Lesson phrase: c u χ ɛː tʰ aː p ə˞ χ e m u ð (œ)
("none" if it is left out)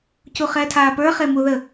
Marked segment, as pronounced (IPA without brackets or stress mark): ə